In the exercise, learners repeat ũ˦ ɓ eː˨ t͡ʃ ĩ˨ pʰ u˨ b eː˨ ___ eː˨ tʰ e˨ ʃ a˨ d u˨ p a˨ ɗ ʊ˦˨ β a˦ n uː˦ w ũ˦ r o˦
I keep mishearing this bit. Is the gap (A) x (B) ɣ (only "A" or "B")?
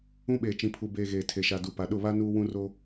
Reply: B